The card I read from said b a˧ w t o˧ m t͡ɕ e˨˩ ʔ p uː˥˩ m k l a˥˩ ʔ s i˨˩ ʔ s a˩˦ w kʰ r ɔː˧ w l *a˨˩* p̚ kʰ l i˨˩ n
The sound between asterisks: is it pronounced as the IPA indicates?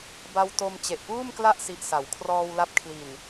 no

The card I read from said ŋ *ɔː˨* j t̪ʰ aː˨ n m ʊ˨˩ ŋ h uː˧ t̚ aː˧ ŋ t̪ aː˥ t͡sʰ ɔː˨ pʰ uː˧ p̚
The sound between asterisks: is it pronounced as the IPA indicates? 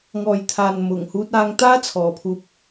yes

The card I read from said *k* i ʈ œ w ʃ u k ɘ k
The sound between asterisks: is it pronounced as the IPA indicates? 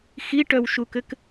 no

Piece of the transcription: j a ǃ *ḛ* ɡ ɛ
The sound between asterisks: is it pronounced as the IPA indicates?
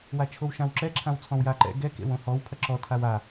no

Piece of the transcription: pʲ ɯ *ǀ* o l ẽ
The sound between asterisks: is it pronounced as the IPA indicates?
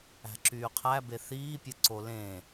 yes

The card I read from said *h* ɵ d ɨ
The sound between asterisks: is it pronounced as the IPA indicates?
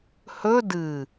yes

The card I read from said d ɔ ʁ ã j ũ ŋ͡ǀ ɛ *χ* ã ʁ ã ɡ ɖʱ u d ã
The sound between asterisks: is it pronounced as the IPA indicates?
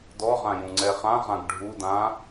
yes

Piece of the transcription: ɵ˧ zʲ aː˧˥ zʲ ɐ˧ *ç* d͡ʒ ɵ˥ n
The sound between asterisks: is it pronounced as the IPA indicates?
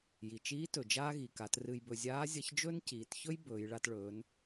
yes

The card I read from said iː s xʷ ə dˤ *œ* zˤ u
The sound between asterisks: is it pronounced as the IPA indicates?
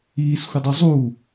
yes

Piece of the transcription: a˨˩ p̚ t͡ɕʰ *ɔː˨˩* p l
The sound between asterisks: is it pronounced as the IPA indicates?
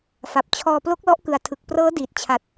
no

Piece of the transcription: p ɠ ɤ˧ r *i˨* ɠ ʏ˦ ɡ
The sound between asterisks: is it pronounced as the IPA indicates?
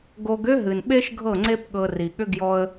yes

